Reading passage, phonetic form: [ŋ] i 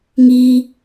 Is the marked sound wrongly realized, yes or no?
no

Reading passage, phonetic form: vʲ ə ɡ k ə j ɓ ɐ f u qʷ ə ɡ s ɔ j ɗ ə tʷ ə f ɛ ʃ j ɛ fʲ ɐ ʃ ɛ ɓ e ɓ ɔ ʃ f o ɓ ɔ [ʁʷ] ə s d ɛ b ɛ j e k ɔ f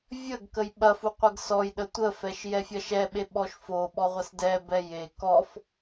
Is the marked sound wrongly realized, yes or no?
no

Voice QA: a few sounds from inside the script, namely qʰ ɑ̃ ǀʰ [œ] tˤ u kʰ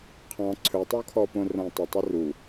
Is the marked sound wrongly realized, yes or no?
yes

